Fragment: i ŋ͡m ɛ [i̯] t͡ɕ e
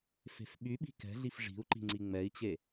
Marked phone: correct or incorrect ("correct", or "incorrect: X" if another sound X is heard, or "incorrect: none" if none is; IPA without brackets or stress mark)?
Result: correct